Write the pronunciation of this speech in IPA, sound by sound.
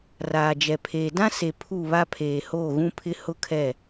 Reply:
r aː˨ d͡ʒ ɛ˨ pʰ eː˨ d ã˦ s e˨ pʰ u˦˨ β a˦ pʰ eː˨ h oː˦˨ ɣ ũ˦ pʰ ɪ˦ h ʊ˦ kʰ ɛ˦˨

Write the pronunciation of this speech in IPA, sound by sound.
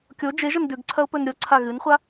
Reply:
kʲ o d͡ʒ e ʒ ɐ n d ʉ ɡ ǀʰ ɐ ʊ̯ p ɵ n ɾʲ o ǀʰ a ɣ ɨ n χʷ a

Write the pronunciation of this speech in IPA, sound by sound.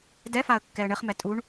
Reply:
d ɛ f a ə̯ kː ɛ ə̯ ɳ ɘ χ m ɛ tʼ u ɳ

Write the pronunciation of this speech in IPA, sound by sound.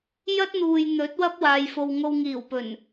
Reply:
j ɐ˥ t̚ n̪ uː˨ j n̪ ɵ˨˥ t̚ w ɐ˥ p̚ w aː˨ j f o˨ w ŋ o˧ w ŋ iː˨˩ w p ɵ˨˩ n

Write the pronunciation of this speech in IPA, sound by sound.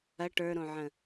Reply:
ɐ ʈ ə˞ ɾ õ ʕ ə̃

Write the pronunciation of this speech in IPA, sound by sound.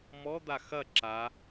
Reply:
m ɔ d̪ a x ɐ ǁ a

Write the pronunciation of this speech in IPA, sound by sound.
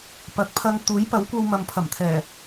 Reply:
p ɐ˨˥ k̚ pʰ ɐ˧ ŋ t̪ uː˨˥ j p ɐ˨˥ w kʷ ɐ˧ w m ɐ˨ m pʰ ɐ˨˩ m t̪ʰ ɛː˨˩

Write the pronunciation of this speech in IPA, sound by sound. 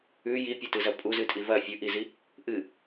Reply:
ʉ j i pʲ u t ɨ z ɐ pʼ u z ɨ tʼ i v ɐ fʲ ɵ ʔ i z i | ʔ ɨ

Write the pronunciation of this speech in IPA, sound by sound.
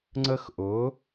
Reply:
ŋ͡ǀ ə˥ x ʔ ʊ˧˥

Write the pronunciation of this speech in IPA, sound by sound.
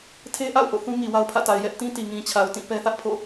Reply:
tʰ e˦ ʔ a̰˦˨ ʊ̯ ʔ o̰˦˨ θ ũ˦ ŋ i˨ w a˦ ʊ̯ pʰ ä̰˦˨ t a˨ ɪ̯ j ɛ˦ ʔ t ĩ˦ t i˨ ŋ ĩ˨ t͡ɕʰ a˨ ʊ̯ t ĩ˦˨ p ɛ˦ θ ä˦ ʔ pʰ o̰˦˨

